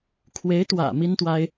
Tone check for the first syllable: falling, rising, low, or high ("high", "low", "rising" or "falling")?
rising